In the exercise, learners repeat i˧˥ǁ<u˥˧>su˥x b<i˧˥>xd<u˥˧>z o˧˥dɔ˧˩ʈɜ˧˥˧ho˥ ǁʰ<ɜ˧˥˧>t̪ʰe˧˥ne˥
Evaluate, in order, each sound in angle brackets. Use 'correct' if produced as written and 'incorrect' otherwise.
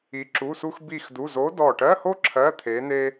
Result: incorrect: u˧˥˧, incorrect: i˥˧, incorrect: u˧˥˧, correct

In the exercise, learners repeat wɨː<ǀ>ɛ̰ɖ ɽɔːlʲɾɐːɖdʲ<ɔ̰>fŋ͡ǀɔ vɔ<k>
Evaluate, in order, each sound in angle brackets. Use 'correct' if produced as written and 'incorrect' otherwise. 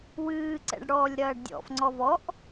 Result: correct, correct, incorrect: ʔ

